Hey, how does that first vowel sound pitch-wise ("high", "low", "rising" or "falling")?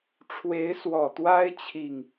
rising